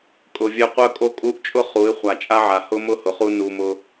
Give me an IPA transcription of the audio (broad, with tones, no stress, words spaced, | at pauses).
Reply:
kʼʊ˨vʲœ˧ qʷœ˧kʼo˧kʼu˧ʔt͡ʃʼʊ˦ χu˨˦ɪ̯ χʷa˨t͡ʃʼa˦ʕa˨ hʊ˦ mʊ˦˨hʊ˨χu˧ nu˧mʊ˦